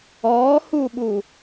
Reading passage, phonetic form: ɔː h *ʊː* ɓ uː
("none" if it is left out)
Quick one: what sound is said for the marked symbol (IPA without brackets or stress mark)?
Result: uː